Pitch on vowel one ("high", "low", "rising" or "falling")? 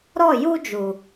falling